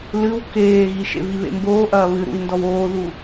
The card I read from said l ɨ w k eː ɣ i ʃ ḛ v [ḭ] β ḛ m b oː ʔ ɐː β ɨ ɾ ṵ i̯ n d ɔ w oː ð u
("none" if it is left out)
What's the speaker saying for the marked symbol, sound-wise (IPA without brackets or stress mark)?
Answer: i